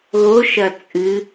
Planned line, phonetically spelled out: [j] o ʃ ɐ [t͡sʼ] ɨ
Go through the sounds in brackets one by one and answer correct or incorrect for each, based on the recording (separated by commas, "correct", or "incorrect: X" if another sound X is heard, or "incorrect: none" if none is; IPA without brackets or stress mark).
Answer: incorrect: ɣ, correct